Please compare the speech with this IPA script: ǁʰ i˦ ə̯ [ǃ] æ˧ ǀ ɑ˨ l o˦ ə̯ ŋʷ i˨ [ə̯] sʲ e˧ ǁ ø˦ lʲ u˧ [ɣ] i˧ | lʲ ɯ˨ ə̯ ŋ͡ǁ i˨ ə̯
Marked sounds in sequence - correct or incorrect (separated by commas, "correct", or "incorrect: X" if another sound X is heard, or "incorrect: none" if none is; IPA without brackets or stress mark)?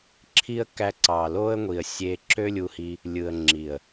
incorrect: k, correct, incorrect: h